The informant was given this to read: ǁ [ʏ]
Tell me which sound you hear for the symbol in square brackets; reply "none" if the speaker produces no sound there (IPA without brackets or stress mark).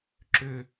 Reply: ʏ